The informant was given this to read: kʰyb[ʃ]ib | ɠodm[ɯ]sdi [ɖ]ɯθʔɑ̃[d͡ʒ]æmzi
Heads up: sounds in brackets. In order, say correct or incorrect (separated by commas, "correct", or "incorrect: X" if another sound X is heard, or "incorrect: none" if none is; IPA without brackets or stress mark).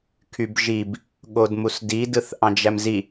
incorrect: ʒ, incorrect: u, incorrect: d, correct